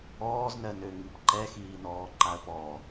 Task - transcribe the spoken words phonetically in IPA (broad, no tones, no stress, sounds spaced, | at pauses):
ɔː z n ɜ n ø ŋ i p ǃ ɛ x iː n ɔː ǃ a ə̯ p ɔ